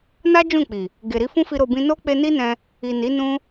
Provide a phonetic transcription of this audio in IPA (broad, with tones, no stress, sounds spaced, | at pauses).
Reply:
n a˦ d͡ʒ ũ˦˨ k͡p i˨ | ɡ e˨ ɾ i˧ f ũ˦ f i˧ ɾ o˧ b ĩ˦ n o˦ k͡p e˧ n i˦ n ɛ̃˧ | i˨ n i˨˦ n ũ˦